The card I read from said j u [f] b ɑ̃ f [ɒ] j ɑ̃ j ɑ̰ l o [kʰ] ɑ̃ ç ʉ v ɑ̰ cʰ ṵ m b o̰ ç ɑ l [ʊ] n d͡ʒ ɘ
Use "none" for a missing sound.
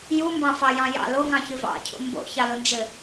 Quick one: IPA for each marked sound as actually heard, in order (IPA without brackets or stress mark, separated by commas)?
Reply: m, ɑ, ŋ, ʊ